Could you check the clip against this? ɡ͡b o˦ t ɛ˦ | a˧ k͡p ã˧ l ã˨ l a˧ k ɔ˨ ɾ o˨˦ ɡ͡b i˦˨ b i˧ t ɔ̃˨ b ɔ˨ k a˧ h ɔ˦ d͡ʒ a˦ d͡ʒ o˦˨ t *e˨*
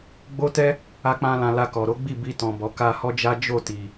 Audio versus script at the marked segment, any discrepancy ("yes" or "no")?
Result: yes